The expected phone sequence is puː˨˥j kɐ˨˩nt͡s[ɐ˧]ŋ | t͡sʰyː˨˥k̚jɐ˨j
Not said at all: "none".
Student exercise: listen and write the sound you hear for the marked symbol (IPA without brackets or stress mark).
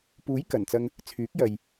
ɐ˧